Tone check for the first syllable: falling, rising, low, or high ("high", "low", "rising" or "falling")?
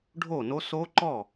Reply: falling